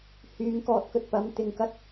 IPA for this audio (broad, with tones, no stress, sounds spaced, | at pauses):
h yː˨˧ ŋ k ɔː˧ t̚ k ɵ˧ t̚ p ɐ˨˥ m t̪ ɪ˨ ŋ k ɐ˥ t̚